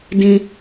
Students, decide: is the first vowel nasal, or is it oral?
nasal